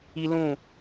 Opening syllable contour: high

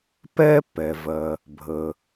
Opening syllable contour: high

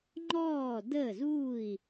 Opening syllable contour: falling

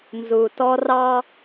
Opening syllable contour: low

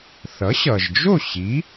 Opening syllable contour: rising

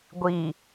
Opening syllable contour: low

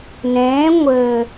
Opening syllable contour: rising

